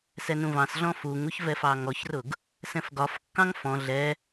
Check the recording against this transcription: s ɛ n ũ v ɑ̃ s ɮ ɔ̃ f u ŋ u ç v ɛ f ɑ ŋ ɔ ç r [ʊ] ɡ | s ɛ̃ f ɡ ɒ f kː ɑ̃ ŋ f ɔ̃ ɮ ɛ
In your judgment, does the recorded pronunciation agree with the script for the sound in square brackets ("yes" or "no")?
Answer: yes